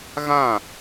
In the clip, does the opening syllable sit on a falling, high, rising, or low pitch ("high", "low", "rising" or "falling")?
falling